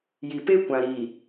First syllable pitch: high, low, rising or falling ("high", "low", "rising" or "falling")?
low